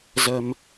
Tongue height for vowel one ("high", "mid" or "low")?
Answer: mid